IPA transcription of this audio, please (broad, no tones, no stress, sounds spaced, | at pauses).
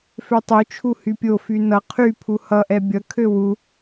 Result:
f ø tˤ u t͡ʃʰ u h y pʲ o f y n ʌ qʰ y pʰ u h ʌ ʔ ɛ bʲ ʌ kʰ ø w u